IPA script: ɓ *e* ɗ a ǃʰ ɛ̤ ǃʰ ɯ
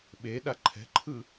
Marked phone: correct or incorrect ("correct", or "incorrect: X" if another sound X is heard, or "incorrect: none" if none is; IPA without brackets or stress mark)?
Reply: correct